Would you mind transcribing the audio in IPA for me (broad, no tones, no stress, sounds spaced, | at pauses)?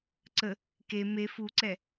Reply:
ǀ ə | k e m e f u ǀ ɛ